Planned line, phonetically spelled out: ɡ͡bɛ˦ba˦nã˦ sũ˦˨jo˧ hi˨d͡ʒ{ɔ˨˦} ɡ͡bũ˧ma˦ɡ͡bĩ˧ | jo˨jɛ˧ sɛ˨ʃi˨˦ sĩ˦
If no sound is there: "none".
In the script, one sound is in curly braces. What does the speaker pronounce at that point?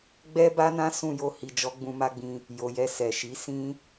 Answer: ɔ˨˦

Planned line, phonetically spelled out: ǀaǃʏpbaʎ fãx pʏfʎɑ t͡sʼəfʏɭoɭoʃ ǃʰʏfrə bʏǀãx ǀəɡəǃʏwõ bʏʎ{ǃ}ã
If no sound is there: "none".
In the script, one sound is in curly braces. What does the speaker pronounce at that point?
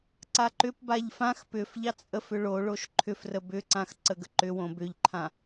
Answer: ǃʰ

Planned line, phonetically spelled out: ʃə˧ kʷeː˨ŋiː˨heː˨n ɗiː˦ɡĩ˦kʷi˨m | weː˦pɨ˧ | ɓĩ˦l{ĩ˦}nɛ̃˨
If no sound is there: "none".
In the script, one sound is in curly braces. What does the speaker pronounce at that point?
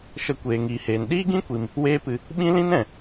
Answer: ĩ˦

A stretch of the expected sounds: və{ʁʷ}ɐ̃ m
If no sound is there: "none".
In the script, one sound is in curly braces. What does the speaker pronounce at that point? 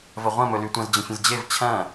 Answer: ʁʷ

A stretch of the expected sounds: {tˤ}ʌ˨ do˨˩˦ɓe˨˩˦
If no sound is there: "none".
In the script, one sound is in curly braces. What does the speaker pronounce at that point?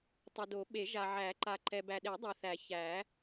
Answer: tˤ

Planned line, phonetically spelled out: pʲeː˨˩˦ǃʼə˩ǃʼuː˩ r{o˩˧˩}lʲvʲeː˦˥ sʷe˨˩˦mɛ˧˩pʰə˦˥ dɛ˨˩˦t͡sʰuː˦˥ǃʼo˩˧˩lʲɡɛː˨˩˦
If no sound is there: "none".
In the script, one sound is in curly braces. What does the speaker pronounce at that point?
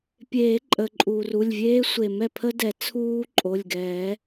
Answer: u˩˧˩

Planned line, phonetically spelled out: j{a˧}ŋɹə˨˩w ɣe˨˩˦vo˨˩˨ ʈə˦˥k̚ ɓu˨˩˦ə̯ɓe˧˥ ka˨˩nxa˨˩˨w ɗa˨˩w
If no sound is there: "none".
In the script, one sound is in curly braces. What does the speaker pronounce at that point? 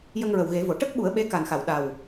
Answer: ə˧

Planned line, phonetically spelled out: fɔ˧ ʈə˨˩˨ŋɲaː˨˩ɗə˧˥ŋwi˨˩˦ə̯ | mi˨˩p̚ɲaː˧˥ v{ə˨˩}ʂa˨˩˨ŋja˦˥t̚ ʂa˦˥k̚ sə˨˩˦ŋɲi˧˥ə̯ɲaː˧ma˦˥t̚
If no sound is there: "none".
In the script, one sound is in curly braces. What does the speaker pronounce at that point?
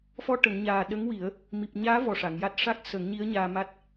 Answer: ɔ˨˩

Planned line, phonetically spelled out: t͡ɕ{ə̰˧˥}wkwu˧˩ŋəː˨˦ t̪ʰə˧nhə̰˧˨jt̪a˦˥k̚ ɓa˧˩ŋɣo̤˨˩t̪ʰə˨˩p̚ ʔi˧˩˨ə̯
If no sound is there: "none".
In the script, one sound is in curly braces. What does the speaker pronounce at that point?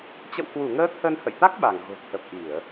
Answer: ə̰˧˨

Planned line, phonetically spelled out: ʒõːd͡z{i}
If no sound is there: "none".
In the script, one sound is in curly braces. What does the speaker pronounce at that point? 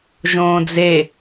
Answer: e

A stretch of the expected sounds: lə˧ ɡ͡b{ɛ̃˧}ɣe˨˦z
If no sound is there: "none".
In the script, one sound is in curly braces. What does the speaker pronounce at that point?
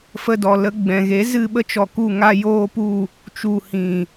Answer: ɛ̃˨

